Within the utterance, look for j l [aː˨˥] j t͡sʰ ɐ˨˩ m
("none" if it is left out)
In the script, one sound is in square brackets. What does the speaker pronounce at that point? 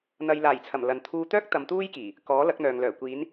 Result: aː˨˩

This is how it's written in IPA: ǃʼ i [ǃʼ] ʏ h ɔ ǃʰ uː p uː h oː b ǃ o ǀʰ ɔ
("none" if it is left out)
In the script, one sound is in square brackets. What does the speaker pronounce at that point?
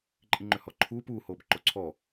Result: ŋ͡ǃ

